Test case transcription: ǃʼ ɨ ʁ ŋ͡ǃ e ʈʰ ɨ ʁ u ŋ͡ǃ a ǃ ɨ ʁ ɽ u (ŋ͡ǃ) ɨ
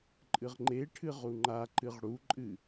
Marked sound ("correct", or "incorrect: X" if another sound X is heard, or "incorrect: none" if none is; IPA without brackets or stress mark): incorrect: ǃʼ